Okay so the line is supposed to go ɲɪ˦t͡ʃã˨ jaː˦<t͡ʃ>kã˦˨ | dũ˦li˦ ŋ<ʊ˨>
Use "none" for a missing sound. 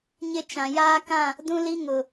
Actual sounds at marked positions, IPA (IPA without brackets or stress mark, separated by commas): none, ʊ˨